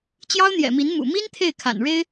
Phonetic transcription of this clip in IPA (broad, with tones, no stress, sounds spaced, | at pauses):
t͡ɕ j ɑ˥ ʊ̯ n̪ j ɛ̰˨˩ m i˧˥ n m ṵ˨˩ m i˥ n t̪ʰ e˥˩ ɪ̯ kʰ a̰˨˩ n ɻ e˥ ɪ̯